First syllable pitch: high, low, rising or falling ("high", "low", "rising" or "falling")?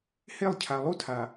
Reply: falling